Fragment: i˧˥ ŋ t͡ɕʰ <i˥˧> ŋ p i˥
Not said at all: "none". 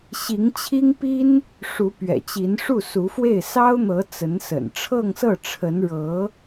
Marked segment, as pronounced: i˥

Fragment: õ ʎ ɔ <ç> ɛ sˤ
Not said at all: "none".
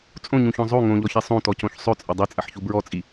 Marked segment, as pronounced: ç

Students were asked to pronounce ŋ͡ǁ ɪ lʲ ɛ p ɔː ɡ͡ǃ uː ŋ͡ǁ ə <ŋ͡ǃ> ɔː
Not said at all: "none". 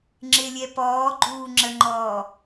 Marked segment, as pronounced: ŋ͡ǃ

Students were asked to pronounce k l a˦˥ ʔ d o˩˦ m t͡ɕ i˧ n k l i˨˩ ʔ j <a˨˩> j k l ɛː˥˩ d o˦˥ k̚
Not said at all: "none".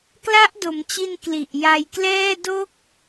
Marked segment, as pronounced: a˧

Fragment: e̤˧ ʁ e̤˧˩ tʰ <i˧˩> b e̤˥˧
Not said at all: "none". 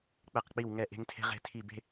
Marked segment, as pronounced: i˧˩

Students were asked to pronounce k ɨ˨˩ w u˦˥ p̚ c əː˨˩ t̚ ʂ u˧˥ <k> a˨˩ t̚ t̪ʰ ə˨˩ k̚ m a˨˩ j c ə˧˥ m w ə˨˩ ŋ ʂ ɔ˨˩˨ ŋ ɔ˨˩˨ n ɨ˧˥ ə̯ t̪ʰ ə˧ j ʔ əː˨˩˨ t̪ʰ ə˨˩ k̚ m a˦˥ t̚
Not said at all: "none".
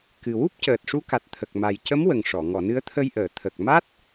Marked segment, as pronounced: k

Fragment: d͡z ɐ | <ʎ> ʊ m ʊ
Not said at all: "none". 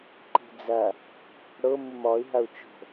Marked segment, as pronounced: ɽ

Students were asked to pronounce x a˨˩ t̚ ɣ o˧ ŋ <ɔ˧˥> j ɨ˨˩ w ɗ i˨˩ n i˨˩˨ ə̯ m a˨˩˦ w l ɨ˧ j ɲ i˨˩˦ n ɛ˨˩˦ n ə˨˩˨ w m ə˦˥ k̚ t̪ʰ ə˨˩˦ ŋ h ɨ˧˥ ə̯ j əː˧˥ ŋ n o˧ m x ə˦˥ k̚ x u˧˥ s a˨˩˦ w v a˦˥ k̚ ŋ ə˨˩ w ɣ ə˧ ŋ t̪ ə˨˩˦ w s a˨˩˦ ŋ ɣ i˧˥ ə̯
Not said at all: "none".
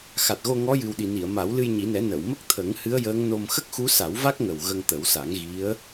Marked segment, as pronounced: ɔ˧˥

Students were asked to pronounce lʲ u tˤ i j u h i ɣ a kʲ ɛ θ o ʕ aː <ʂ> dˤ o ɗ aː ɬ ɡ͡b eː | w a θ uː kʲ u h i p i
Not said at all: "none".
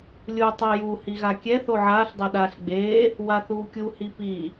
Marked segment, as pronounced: ɬ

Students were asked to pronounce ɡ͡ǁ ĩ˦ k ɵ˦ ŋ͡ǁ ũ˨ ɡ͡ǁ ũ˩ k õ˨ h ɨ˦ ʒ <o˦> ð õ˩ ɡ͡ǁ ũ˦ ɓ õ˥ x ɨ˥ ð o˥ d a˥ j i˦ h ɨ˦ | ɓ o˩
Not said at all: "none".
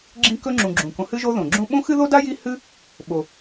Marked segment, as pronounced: o˦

